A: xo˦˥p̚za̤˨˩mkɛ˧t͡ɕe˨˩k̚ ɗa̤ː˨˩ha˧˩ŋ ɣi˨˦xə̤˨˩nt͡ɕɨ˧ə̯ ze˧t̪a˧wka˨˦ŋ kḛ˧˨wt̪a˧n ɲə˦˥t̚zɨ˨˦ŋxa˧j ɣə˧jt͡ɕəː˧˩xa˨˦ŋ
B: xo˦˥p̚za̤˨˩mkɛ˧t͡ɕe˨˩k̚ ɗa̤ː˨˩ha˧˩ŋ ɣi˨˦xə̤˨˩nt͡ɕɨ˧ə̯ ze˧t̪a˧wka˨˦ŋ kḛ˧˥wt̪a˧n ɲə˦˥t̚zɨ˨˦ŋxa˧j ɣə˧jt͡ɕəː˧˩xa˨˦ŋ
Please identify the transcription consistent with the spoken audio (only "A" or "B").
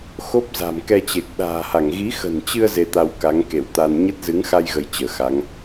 A